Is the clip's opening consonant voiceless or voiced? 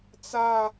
voiceless